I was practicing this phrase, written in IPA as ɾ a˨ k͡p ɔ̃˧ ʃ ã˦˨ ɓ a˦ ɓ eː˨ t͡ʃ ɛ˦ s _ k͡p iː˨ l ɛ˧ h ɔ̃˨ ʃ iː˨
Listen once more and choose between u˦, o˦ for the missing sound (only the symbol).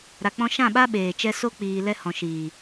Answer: o˦